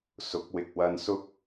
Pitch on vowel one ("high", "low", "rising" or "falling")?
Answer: rising